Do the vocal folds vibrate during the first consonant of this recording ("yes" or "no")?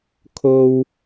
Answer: no